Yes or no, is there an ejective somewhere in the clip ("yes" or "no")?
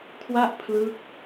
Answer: no